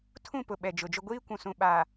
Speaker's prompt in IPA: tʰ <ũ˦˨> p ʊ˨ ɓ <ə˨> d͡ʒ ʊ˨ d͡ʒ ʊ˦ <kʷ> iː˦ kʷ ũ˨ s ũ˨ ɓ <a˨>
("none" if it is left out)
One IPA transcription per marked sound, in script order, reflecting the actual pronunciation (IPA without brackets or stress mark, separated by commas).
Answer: ũ˦˨, ɛ˨, ɡʷ, a˨